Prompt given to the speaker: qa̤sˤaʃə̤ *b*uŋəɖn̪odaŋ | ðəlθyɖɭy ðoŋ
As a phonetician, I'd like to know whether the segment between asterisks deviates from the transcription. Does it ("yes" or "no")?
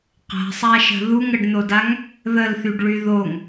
yes